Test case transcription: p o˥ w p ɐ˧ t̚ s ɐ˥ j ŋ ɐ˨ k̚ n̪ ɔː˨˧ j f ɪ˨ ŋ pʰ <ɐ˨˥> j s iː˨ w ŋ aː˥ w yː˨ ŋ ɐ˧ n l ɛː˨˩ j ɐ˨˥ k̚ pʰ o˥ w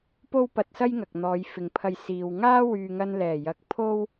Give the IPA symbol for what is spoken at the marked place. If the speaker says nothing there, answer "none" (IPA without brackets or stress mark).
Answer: ɐ˧